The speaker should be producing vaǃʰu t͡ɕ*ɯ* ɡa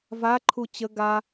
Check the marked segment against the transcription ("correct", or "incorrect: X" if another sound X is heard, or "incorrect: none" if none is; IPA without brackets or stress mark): incorrect: ə